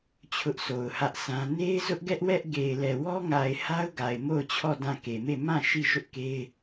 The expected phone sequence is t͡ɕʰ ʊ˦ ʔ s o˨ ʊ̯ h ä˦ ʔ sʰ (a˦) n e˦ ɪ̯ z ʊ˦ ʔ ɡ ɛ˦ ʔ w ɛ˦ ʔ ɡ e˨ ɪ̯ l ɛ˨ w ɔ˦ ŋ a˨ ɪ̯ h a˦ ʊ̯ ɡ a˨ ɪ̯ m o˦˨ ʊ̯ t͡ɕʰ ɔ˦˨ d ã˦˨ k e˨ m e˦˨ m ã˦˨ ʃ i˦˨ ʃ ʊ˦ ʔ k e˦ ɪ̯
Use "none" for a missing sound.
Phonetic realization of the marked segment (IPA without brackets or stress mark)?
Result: ã˦